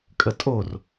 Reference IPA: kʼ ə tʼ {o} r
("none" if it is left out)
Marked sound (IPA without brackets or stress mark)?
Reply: o